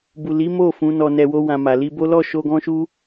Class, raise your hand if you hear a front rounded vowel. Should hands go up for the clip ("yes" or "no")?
no